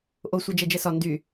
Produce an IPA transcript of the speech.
ʔ o sʷ ɛ d͡ʒ ɛ d͡ʒ ɛ s ɒ n d y

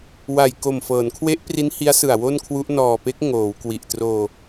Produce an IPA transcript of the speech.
w a˨˩ j k o˨˩ m f ɤː˩˦ n kʰ w e˦˥ ʔ p r i˦˥ n h i˦˥ a̯ s ɯ˨˩ a̯ w o˥˩ n kʰ w u˦˥ ʔ n ɔː˨˩ p e˦˥ k̚ ŋ oː˩˦ w k w i˨˩ ʔ t r oː˧

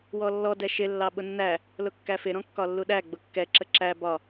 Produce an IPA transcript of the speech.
w ɔ lː ɔ d ɛ ʃ ɪ lː ɑ ɓ ʊ nː æ | l ʊ kː æ f ɪ ɾ ɔ̃ kː ɒ lː u ɗ æ ɡ͡b ʊ kː ɛ ǁ ə ǁ æ b ɒ

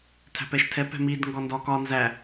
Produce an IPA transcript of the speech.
tʰ æ̤ p ɛ ʃ tʰ ɛ p ɛ̤ m i d ŋ ɡ ɒ n d ɒ k ɒ n z æ

